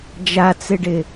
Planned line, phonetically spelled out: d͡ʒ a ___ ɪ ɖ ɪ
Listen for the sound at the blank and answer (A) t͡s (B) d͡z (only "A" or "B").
A